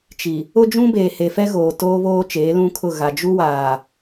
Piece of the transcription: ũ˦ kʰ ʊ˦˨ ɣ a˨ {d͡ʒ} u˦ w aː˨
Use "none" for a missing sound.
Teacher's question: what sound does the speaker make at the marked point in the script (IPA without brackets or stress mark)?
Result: d͡ʒ